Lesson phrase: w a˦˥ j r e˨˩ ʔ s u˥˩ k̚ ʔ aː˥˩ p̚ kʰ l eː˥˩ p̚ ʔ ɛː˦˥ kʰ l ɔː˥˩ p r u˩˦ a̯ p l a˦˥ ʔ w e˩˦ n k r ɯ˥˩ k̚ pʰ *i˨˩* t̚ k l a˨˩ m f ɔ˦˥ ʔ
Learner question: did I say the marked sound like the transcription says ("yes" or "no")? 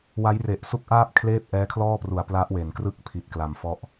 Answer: yes